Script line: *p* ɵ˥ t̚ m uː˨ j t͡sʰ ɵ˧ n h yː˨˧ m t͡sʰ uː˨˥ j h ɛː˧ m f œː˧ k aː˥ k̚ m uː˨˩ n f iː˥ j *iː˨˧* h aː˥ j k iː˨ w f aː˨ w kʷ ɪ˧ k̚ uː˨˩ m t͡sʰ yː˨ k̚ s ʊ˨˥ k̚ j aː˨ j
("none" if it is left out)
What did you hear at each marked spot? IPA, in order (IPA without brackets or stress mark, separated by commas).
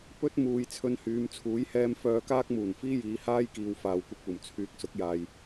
p, iː˨˧